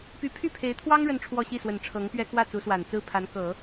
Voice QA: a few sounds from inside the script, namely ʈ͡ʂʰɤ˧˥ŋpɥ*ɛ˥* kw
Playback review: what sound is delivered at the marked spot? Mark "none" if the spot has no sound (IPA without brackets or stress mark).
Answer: ɛ˥